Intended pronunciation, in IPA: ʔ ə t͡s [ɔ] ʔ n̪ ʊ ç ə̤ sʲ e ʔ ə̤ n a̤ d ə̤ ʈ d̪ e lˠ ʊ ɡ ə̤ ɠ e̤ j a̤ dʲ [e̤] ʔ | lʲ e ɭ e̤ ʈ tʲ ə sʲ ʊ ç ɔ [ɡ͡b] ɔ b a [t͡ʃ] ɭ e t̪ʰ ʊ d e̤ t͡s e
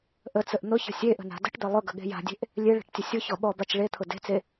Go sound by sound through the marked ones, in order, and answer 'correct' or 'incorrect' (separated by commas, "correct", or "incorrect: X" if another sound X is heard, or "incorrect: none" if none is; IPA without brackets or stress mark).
incorrect: ə, correct, incorrect: ɓ, correct